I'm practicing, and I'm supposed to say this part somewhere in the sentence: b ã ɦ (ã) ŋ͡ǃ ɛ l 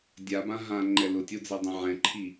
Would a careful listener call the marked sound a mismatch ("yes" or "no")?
no